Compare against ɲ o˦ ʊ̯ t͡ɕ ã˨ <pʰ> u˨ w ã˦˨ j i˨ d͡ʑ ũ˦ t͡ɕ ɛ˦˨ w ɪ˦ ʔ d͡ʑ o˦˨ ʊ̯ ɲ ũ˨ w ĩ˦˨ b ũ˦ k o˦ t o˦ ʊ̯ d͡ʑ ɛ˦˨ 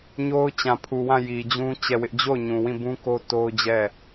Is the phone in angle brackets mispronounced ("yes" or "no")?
no